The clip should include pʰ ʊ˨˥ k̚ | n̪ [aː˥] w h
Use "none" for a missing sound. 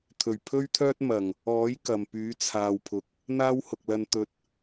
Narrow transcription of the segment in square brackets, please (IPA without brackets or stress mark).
aː˥